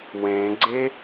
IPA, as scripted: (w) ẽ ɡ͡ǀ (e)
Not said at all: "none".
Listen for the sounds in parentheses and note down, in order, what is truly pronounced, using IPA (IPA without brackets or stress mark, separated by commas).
w, e